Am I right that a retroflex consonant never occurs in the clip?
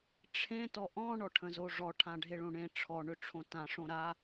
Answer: no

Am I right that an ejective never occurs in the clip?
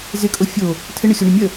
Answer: no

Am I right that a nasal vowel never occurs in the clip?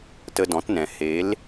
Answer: no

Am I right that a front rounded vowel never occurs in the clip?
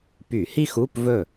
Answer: no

